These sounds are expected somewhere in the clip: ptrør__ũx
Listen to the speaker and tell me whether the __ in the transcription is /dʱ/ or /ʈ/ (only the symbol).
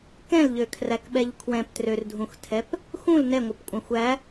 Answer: dʱ